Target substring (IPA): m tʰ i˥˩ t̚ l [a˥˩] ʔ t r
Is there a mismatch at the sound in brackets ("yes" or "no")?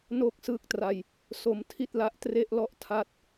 yes